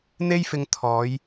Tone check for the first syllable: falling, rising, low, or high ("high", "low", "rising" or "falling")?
high